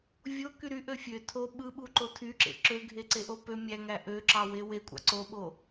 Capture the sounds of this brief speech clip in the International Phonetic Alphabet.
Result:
vʲoky ɾyʔø fʲø tʰo ɓɯɓuǃo tʰyǁḛ ǁøɡʱeǀeʔo pø mʲæŋæ ʔøǁɑwe wekʷʼɑ̰ ǀoɓo

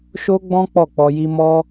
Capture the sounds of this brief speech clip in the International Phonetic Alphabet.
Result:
ʃo˦ɡ͡bɔ̃˦ k͡pɔ˦˨k͡pɔ˧ji˦ mɔ˦

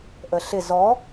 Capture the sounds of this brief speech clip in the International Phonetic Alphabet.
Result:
ʔəɬɪ zɔ

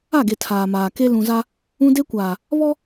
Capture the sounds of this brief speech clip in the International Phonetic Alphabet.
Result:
a˦˨ɡe˨ tʰaː˨maː˨ke˦ lũ˨za˦ | ũ˦ de˦kʷaː˨ | βɔ˦

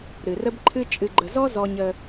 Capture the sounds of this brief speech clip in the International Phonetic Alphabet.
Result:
ɾɨ˨rə˦bǃʰɨ˦ t͡ʃʼɨ˨ɡ͡ǃə˨zɔ˦ zɔ˦ɲə˦

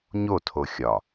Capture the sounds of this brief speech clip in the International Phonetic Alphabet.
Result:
ɲotʰo xʲɒ

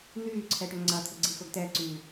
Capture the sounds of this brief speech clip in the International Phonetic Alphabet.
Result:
n̪yːǀʰɛʈœ ŋ͡ǀɐt̪ʰʊɡ͡ǀixʊɡ tɛǀyː

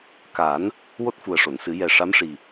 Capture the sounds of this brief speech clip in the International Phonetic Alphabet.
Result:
ka˨˩˦n | wo˦˥t̚fu˨˩ə̯ʂo˨˩˨nsɨ˨˩˦ jɛ˨˩ ʂa˧˥mʂi˨˩

